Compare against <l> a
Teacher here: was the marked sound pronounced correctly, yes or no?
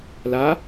yes